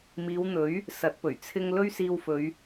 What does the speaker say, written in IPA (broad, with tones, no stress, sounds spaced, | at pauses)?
m iː˨˧ w n̪ ɵ˨˥ ɥ | s ɐ˨˥ t̚ p ɵ˨˩ ɥ t͡sʰ ɪ˧ ŋ l ɵ˥ ɥ s iː˧ w f ɵ˨˧ ɥ